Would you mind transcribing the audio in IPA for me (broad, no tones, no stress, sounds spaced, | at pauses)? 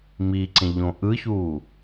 m i ǀ ẽ ʎ õ ʔ ɯ ç u